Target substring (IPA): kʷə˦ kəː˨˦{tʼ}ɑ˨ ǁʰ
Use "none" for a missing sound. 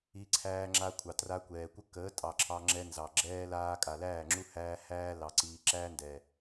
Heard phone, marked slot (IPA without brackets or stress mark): tʼ